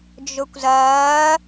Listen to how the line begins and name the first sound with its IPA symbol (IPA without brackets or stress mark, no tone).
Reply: d͡ʒ